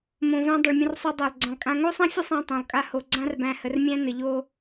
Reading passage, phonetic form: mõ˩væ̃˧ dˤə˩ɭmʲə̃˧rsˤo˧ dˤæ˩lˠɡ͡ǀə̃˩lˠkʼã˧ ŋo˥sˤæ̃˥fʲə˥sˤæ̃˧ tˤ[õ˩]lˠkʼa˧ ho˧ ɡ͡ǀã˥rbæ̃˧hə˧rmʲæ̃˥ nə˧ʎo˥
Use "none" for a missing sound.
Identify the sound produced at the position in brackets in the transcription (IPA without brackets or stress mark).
õ˩